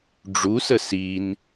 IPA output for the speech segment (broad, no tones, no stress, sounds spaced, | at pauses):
ɖ͡ʐ u s ə s i n